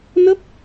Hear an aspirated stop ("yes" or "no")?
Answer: no